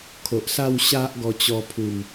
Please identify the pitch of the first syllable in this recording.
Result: low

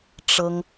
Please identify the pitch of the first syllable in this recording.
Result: high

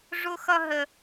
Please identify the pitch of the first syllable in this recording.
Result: high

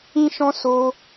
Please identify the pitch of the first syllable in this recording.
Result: high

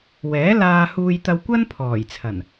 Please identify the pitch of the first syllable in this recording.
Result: rising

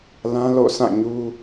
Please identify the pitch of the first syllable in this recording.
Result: high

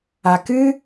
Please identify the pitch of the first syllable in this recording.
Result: low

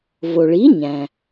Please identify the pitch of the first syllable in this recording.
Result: low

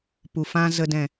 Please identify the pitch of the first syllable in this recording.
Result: low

